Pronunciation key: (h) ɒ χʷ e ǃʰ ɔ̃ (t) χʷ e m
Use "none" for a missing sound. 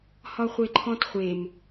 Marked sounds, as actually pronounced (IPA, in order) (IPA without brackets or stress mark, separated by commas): h, t